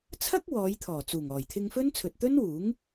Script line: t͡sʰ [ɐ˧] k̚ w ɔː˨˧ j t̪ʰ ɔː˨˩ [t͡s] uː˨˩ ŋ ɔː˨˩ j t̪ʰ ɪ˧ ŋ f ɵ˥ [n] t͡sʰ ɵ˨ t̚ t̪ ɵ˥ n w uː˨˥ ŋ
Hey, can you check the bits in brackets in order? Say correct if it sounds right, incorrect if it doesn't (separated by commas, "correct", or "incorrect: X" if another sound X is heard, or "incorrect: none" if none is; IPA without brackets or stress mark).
incorrect: ɐ˥, correct, correct